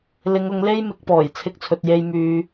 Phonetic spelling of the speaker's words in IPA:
l ɪ˨˧ ŋ ʊ˨˧ ŋ l e˥ j m ɪ˨˥ k̚ p ɔː˨˩ j t͡sʰ ɪ˧ k̚ t͡sʰ ɵ˨ t̚ j e˧ j m yː˧

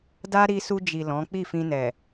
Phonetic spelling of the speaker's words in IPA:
d a˦ ɾ i˧ s u˧ d͡ʒ i˨ l ɔ̃˨˦ k͡p i˦˨ f ĩ˧ n ɛ˨

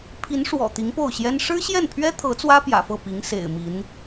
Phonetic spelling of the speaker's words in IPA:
pʰ i˧˥ n ʂ w ɔ̰˨˩ t̪ i˧˥ ŋ p o˥˩ ʊ̯ ɕ j ɛ˥ n ʂ ɻ̩˥ ɕ j ɛ˥˩ n pʰ ɥ ɛ˥ t̪ʰ ɤ˧˥ t͡s w ä˥ p j ä̰˨˩ f ɤ˥˩ p i˧˥ ŋ s ḛ˨˩ ɪ̯ m i˧˥ n

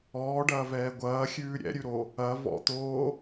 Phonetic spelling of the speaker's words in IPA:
ɔː ɖ ɐː v ɛː ɡʷ ɐː xʲ ʉː ɾʲ ɛ̰ ɾʲ ʉ ɾ o | ɐ v ɔ̰ t̪ oː

